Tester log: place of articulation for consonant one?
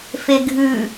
labial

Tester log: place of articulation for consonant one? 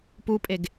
labial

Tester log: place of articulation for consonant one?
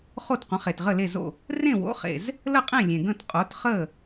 uvular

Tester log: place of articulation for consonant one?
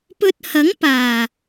labial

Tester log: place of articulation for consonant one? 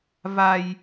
labial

